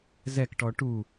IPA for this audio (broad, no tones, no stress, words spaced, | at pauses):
zɛkʈɔ ʈu